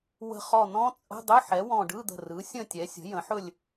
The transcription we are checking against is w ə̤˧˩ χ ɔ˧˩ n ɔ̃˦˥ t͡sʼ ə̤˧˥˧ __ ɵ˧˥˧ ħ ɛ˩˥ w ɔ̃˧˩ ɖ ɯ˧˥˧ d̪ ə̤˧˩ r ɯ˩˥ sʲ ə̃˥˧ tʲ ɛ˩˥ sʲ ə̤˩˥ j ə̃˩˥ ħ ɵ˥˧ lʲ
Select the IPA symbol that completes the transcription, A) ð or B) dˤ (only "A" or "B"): B